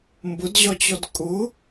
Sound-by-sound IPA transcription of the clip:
m b ʊ d ʑ ɒ t͡ɕ ɔ d kʼ ʊ

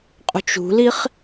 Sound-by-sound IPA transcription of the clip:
qʼ ṳ t͡ʃ ṳ l i χ

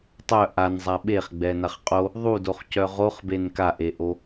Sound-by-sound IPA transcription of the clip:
tˤ œ ʔ a n zˤ a ɓ e χ ɡ͡b ɛ n a χ qʼ o | ðˤ u d o χ c œ ʁ o χ b e n k a ʔ e ʔ o

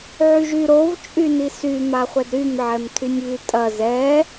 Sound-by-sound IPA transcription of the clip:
ʕ y ʒ y ɾ o v t͡ʃʼ y n i s y m a χʷ ɛ d ɾ y m ʕ ɛ m tʰ y nʲ β y tʼ ɐ z ɛ

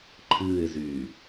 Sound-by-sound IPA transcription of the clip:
ǃʰ ɨː ɪ̯ z yː

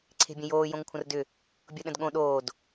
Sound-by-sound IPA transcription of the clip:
ǀʰ e̤ bʲ ə̃ j oː j õ ŋ kʷʰ ə̃ r d ʏ | bʲ o ɗ ə̃ d ɠ õ ɗ oː d

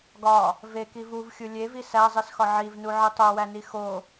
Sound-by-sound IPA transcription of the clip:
ɡ ɒ | v e k i v u v xʲ u lʲ e v i s æ zˤ i s x ɒ ʕ i v n u ʕ i tˤ o w æ n i x o

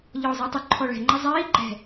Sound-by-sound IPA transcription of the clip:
ʎ ɔː zˤ iː tˤ ʊ ǃʰ ɔ ɭ ɛ̤ ŋ͡ǃ a zˤ iː ɡ͡ǃ ɛ̤

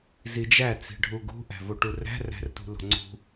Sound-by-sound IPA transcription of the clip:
z i d͡ʒ æ t͡s i̤ ɖʱ u ɡ ṳ ʔ æ̤ v o ʈ u r æ̤ r æ̤ r t ṳ l o̤ ŋ͡ǀ ṳ

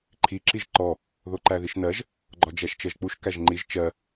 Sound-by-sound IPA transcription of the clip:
ǃʰ i ǁ i ʒ ǃ ɔ | ð o ǃ æ ð i ʃ n ɜ ʒ | ɡ͡ǃ ɔ d͡ʒ æ ʃ t͡ʃ ɜ ʒ k͡p u ʃ k æ ʒ ŋ͡ǃ i ʒ t͡ʃ ɜ

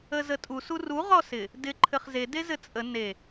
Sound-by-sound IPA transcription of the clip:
ə z ə tʼ u s u r u ʁ ɔ s ɪ | d ɪ ǃʰ ɘ χ z e d e z ɘ t͡sʼ ə n e

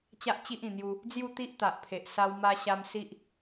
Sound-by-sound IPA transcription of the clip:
t͡ɕ a˦ ʔ t͡ɕ i˦ ʔ ĩ˨˩ n̪ j u˧ | d͡z j u˥˧ t̪ i˦ ʔ t̪ a˨ ʔ pʰ e˨ ʔ s a˧ w m a˧ ɕ a˧ m s i˦ ʔ

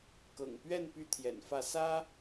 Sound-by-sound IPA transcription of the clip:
k ɤ̰˨˩ ŋ p ɥ ɛ˥˨ n p y˦ t̪ʰ j ɛ̰˨˩ n f ä˥˨ s ä˦

